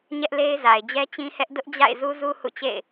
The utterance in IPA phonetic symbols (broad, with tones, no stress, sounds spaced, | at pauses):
ɲ ɛ˦ ʔ l e˦ ɪ̯ z a˨ ɪ̯ d͡ʑ ɛ˦ t͡ɕ ĩ˦ h ɛ˦ ʔ d ʊ˦ ʔ d͡ʑ a̰˦˨ ɪ̯ z u˦ z u˦ h ṵ˦˨ t͡ɕ ḛ˦˨ ɪ̯